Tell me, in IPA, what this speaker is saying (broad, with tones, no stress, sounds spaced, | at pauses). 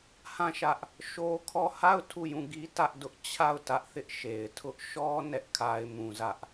h ã˦˨ ʃ ä˦ ʔ | ʃ o˦ kʰ ɔ˦˨ h a˦˨ ʊ̯ tʰ u˦˨ j ũ˦˨ ɡ i˦ t ä˦ ʔ d ʊ˦ ʔ t͡ɕʰ a˦˨ ʊ̯ t ä˦ ʔ θ ɪ˦ ʔ ʃ e˨ ɪ̯ tʰ ʊ˦ ʔ ʃ ɔ˦ n ɛ˦ ʔ kʰ a˦ ɪ̯ m ũ˦ z ä˦ ʔ